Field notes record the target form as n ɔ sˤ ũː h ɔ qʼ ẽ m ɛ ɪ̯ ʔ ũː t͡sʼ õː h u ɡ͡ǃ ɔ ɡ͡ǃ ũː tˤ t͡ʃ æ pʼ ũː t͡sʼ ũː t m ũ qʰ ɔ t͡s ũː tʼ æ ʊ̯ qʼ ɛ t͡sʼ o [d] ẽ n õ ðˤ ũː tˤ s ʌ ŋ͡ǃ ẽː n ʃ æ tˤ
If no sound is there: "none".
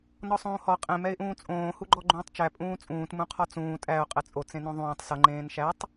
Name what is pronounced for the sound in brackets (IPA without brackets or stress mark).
t͡s